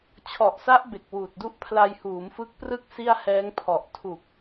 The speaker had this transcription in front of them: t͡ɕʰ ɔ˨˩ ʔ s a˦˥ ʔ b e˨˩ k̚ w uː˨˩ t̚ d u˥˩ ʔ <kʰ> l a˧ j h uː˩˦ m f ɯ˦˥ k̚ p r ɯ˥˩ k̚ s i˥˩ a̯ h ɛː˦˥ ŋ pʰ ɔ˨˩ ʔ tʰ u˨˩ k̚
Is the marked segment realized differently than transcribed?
yes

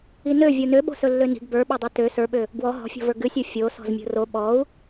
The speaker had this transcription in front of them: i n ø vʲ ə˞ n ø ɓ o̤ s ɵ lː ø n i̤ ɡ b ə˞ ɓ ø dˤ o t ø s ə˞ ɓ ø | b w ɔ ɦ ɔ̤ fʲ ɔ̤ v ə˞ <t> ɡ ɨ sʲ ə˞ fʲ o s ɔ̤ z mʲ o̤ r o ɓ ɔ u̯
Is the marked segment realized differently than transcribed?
yes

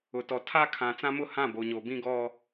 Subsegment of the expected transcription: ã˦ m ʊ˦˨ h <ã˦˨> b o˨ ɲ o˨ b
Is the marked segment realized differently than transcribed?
no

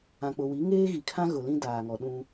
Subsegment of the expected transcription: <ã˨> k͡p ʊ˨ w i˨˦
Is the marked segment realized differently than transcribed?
no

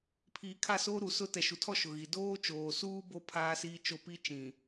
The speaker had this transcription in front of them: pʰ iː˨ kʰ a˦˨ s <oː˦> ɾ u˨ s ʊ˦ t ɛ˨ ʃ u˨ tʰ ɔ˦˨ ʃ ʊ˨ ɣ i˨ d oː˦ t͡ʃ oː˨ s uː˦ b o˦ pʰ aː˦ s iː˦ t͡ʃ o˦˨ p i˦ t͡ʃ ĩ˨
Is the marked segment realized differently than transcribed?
no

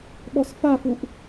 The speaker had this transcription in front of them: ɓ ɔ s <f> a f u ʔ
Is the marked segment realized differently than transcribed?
no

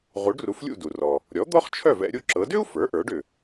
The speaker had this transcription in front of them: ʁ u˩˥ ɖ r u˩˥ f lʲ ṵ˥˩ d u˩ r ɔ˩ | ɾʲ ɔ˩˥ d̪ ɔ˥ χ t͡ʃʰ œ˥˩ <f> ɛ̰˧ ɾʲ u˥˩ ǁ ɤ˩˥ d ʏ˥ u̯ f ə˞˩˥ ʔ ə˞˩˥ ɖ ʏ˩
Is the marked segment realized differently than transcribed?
yes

